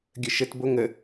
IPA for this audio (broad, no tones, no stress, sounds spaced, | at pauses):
ɡʲ ə ʃ ə t b o ŋ ə